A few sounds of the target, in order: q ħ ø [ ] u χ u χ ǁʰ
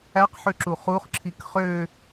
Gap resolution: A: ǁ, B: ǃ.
A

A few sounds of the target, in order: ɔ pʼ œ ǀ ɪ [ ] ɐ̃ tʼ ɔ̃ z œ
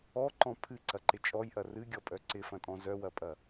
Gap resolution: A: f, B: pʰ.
A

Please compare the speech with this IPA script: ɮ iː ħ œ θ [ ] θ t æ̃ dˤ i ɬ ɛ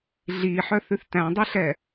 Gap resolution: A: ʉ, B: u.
A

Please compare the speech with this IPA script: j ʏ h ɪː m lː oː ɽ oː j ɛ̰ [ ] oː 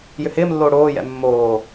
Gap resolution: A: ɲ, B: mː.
B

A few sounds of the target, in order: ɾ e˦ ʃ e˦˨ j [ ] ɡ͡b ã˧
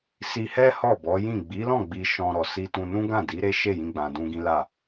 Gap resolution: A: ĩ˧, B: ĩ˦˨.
A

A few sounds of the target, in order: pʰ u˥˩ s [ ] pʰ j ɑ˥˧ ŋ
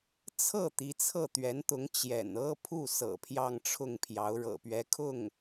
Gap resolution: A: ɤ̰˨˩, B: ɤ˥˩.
A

